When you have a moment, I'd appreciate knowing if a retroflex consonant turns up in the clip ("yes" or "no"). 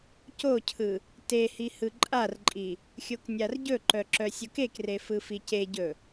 no